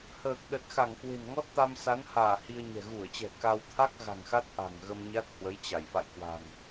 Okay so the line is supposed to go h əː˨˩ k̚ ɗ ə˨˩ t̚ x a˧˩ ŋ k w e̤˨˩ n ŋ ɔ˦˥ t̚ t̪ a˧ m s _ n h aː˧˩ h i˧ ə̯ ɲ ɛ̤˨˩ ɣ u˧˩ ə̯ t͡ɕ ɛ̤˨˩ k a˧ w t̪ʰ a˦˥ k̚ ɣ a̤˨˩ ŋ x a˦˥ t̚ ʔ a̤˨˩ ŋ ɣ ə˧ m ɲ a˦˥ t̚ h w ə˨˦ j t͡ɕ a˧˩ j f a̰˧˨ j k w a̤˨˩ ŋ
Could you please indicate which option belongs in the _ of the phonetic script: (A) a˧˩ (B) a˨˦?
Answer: B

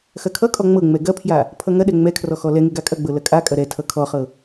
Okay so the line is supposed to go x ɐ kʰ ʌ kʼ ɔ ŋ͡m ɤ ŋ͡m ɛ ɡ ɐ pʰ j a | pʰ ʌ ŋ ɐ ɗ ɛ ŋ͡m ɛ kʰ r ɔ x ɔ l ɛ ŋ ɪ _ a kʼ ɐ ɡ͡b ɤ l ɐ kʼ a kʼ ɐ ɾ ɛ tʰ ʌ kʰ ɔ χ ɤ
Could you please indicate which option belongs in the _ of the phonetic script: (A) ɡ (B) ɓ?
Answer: A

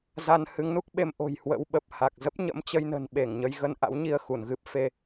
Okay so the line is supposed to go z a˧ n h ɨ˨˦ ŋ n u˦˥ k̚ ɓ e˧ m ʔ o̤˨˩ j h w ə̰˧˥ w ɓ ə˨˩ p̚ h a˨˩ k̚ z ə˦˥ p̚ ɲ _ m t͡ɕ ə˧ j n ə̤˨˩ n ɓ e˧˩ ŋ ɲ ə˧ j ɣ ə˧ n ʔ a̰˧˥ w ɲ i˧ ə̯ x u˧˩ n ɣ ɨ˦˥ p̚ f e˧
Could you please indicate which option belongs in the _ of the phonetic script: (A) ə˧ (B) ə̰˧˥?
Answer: B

